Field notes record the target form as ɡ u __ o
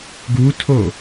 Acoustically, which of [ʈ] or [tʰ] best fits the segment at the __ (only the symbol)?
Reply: tʰ